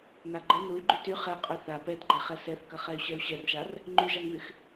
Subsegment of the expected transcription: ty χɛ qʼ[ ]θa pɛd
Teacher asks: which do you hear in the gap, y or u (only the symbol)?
y